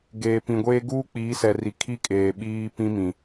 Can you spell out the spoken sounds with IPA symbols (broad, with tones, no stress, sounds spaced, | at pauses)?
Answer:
ɡ eː˨ p ĩ˨ ɡʷ eː˦ ɡ uː˦ k͡p iː˨˦ s ɛ˨ r i˨ kʰ i˦ kʼ eː˨ ɓ iː˦ p ĩ˦ m ĩ˨